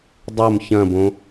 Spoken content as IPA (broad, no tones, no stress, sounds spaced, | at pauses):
dˤ o m ç ɐ̃ b õ